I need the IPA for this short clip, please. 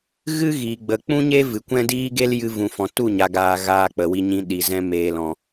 ɣ ɨ˦ ɣ iː˨ ɡ͡b ə˨ k͡p ũ˦ ɲ e˦ v ɨ˨ kʷ ɛ̃˦ d iː˦ ɡ e˦ l j ɨ˧ v ũ˨ f ɔ̃˨ t u˦˨ ɲ a˨ ɡ aː˨ ɣ aː˧ k͡p ə˨ w i˧ ɲ ĩ˧ ɗ i˨ z ɛ̃˧ m eː˨ l ɔ̃˨

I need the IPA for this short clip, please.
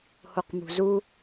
h o q m ṳ z u

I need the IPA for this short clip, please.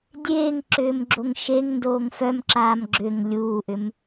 dʲ eː ŋ ǁ ʏː m ɡ͡ǁ o ŋ ʃ e ŋ n d oː ŋ f œ m ǁ aː m ɡ͡ǁ ʏ ŋ lʲ uː ʔ ʏ m

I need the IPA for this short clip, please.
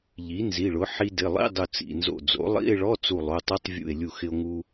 ʎ i˩˥ n z i˩˧˩ ɭ ʊ˩˥ ħ i˧ d ɪ˩˧˩ lˠ ḭ˧˥˧ dˤ ʊ˧˩ t͡s ḭ˩˧˩ n z o̰˧˩ d͡z o̰˩˥ lˠ ḭ˧˥˧ e̯ ɭ ɔ˧˥˧ t͡s u˧˩ lˠ o˩˧˩ tˤ u˧˥˧ tˤ vʲ ṵ˧˩ e̯ lʲ u˧˩ x ɪ˧ o̯ ŋ u˧

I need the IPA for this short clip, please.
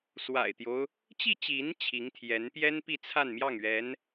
s w a̰˨˩ ɪ̯ t̪ j o˦ ʊ̯ | t͡ɕ i˥˩ t͡ɕ i˧˥ n t͡ɕʰ i˧˥ ŋ t̪ʰ j ɛ˧˥ n p j ɛ˥ n p i˥˧ t͡sʰ a˥˧ n m j ɑ˥˩ ŋ ɥ ɛ˧˥ n

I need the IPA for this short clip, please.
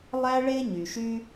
lˠ æ˥ ɭ e˥ ɲ y˩ ʃ y˥

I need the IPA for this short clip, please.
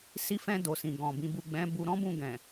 s i˧ f ɛ̃˧ d o˨ s ĩ˨ ɡ ɔ̃˨ b ĩ˨˦ b u˦˨ ɡ͡b ɛ̃˨˦ b u˧ ɾ ɔ̃˦ b ũ˦˨ ɡ ɛ̃˨

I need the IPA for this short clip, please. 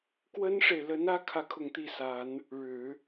k w ə˥ n ʂ e˨ ɪ̯ l ə˧˥ n ä˥ kʰ ä˥˧ kʰ ʊ˥˧ ŋ t̪ i˥˩ s a˨˩˦ n | ɻ ɻ̩˨˩˦

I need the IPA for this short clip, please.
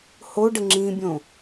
h o ɖ ə ŋ͡ǁ ĩ bʲ õ

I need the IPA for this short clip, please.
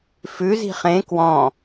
f ʉ z i̤ χ ẽ k w ɔ̃

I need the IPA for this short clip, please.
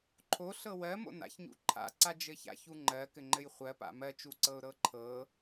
ǃʰ o ɬ ɤ w ɜ m o̰ n a̰ ç ɲ ṵ ǃʰ a̰ ǀ a d͡ʒ ɘ ç a̰ ç u ŋ͡ǃ ɜ k ɘ ŋ͡ǃ ɘ j χʷ ɜ p a̰ m ɜ t͡ʃ u ǀ ɤ ʊ̯ ɾ ɤ ǃʰ ɤ

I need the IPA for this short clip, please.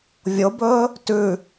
vʲ o b ɵː | t ʉ

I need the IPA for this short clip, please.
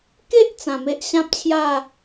k e˦ ʔ t͡s ã˨˩ m e˦ ʔ ɕ ã˦ p̚ t͡ɕʰ j a˥˧

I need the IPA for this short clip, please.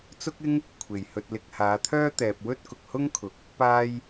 t͡s ʊ˥ k̚ ɪ˥ ŋ | kʷʰ e˨ j h ɵ˧ t̚ l ɪ˧ k̚ h aː˨˧ t̪ʰ œː˥ t̪ ɛː˧ p̚ w ɵ˥ t̚ k ʊ˨ k̚ h ʊ˥ ŋ kʰ ʊ˨˥ k̚ | p aː˥ j

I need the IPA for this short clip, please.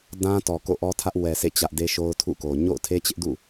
d ã˦ t ɔ˨ k o̰˦˨ ʔ ɔ˦ tʰ ä˦ ʔ w ɛ˨ sʰ ḛ˦˨ t͡ɕ ä˦ ʔ d e˦ ʃ o˦ ʊ̯ tʰ ṵ˦˨ k o˨ ɲ o̰˦˨ ʊ̯ tʰ e˦ t͡ɕ ɪ˦ ʔ d ṵ˦˨

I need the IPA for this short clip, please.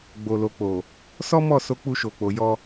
ɡ͡b o˨ l o˨ k͡p o˨ | s ɔ˦ m ɔ˦˨ s o˧ k͡p u˧ ʃ o˨ k͡p o˨ j ɔ˧

